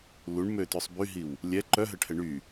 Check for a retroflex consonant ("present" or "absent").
present